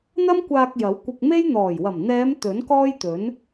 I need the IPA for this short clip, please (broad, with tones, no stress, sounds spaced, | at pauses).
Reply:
n̪ ɐ˥ m kʷ aː˧ k̚ j ɐ˨˥ w kʷ ɪ˧ k̚ m e˥ j n̪ ɔː˨˩ j w ɐ˨˩ m n̪ ɛː˨˧ m t̪ ɵ˨˥ n k ɔː˥ j t̪ ɵ˨˥ n